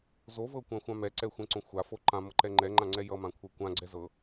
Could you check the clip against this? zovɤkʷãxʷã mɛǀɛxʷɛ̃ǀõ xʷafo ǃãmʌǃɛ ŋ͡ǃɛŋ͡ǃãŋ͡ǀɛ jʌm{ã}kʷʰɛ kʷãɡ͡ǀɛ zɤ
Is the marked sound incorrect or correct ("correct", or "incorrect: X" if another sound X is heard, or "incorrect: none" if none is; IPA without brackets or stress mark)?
correct